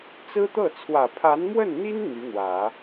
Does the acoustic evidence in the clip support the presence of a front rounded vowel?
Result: yes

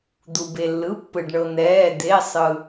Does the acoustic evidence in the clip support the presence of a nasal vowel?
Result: no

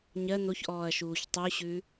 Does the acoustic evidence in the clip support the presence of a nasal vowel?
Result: no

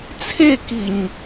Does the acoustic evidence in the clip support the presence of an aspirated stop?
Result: yes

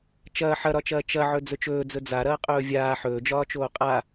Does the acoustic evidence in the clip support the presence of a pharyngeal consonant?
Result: yes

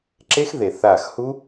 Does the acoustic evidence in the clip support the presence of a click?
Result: yes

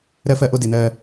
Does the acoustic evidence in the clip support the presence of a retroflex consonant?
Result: no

